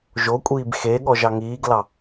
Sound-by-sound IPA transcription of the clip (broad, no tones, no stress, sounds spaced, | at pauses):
ʒ o kʷʼ iː b x e ɠ ɔ ʒ ɑ ŋ iː ɡ l ɑ